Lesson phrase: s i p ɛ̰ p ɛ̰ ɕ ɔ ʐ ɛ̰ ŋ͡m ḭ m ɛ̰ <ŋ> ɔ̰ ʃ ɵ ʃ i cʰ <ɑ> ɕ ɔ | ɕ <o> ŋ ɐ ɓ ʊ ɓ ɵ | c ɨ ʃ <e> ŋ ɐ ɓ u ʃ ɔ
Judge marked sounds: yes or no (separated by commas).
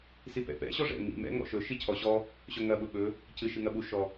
yes, no, no, no